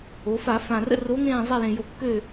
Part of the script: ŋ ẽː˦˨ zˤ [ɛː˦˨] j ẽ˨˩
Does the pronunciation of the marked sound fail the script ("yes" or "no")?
yes